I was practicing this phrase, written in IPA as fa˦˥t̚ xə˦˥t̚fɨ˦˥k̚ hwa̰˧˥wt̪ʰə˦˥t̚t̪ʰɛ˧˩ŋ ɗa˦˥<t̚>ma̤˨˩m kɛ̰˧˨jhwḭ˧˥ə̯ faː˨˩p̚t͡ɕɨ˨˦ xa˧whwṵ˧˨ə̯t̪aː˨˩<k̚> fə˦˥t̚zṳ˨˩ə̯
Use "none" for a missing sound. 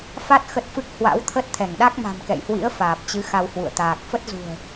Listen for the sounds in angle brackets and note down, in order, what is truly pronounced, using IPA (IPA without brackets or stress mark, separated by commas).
k̚, k̚